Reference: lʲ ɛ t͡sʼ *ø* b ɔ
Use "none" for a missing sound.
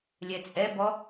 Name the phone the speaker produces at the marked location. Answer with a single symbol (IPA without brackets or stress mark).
ɛ